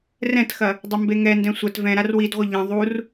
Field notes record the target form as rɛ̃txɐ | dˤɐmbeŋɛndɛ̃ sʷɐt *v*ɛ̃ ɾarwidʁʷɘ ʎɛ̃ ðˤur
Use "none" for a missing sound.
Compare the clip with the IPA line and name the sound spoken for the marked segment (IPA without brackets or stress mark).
v